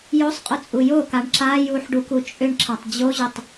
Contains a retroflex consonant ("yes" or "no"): yes